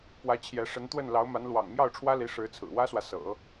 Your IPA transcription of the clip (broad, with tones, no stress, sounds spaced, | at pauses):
p w ä˧˥ t͡ɕʰ j ɛ˧˥ ʂ ə˧˥ n t̪ w ə˥˩ n l ɑ˧˥ ʊ̯ m a˧˥ n l w ɑ̰˨˩ ŋ m j ɑ˥˩ ʊ̯ ʈ͡ʂʰ w ä˥ l i˧˥ ʂ ɻ̩˧˥ t͡sʰ ɹ̩˨˩ w ä˥ s w ä˨ s ɤ̰˨˩˦